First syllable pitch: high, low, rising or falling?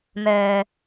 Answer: low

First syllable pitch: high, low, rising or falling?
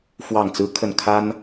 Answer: falling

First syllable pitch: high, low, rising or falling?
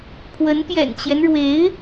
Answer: rising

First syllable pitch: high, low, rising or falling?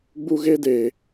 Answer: high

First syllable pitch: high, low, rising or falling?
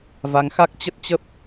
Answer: rising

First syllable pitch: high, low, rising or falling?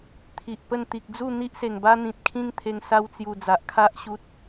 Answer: low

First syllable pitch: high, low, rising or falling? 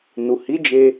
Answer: low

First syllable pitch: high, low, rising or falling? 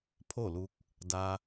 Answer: falling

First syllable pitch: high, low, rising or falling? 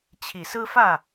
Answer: low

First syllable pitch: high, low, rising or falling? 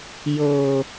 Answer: low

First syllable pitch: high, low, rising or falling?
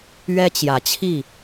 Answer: high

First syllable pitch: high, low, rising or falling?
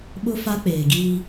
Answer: high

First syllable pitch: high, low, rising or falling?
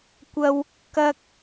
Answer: high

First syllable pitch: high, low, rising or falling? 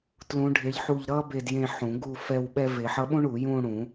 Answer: rising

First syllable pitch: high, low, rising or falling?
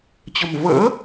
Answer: low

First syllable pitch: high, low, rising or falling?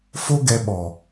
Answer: high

